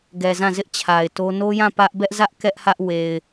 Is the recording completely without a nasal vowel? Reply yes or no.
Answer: no